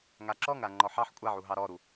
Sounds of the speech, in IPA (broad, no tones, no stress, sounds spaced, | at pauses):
ŋ a ǁ ɔ ŋ ɾ a ŋ͡ǃ ɔ ħ ɑ ħ kʷʼ a ʕ u ɦ ɑ ɾ ɔ ɾ u